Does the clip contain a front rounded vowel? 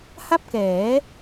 no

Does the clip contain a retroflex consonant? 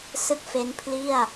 no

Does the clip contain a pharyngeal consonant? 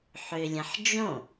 yes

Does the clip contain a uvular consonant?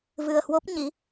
no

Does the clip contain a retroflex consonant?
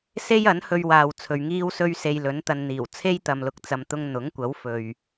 no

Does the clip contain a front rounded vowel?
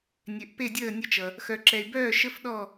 yes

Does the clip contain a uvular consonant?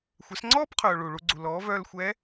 yes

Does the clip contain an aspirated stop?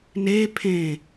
yes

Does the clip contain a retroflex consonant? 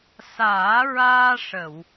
yes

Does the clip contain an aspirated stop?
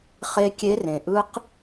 no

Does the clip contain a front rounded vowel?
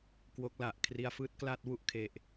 no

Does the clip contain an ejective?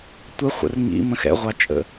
yes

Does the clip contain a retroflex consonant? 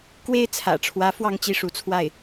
yes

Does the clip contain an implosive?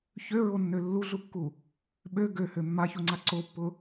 yes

